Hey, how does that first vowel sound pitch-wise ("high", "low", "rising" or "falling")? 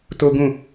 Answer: high